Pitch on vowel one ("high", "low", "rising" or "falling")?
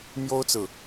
high